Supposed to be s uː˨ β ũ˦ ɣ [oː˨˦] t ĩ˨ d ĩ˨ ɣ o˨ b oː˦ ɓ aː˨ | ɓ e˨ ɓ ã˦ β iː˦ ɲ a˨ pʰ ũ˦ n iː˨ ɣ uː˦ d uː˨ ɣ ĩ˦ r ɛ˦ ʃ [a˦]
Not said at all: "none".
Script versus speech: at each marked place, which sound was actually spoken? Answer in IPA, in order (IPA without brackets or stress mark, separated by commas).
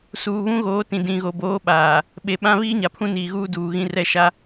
oː˨˦, a˦